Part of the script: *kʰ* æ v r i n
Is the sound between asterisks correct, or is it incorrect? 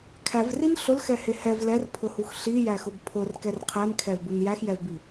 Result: correct